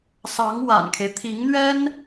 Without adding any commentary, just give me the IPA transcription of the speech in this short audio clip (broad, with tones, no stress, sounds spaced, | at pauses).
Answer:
s ɑ˧˥ ŋ w a̰˨˩ n kʰ e˦ ɪ̯ t̪ʰ i˧˥ ŋ n̪ ɥ ɛ˥ n